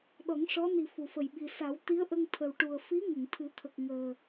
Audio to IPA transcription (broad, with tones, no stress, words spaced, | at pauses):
ɗɔ˨˩˦ŋʂɔ˧˥ ni˨˩ fu˨˩˨fə˨˩jɓi˨˩ sa˨˩˦w t̪i˧˥ə̯ʔə˧ŋ t̪ʰə˨˩wʈu˨˩ə̯ fi˧˥ ŋə˨˩˨ŋt̪ʰɨ˨˩˦t̪ʰə˨˩k̚ŋəː˨˩